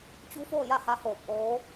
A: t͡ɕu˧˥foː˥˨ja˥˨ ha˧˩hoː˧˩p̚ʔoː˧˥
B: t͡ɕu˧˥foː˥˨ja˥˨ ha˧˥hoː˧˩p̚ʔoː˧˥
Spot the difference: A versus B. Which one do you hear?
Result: B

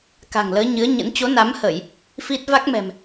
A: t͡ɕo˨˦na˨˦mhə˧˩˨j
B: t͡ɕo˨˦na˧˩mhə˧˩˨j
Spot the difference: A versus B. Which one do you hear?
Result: A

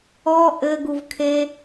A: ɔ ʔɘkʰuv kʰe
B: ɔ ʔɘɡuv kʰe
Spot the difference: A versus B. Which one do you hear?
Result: B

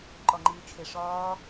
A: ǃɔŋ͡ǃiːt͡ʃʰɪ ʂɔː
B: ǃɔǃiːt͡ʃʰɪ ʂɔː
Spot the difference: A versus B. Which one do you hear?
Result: A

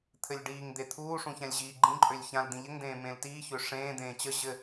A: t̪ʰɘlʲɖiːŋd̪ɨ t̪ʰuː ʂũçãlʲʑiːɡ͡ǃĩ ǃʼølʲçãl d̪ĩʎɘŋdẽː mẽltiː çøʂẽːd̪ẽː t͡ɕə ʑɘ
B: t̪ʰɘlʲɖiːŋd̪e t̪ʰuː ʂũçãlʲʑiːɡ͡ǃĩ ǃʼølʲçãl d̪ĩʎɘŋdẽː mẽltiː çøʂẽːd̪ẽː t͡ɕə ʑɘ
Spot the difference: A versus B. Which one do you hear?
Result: B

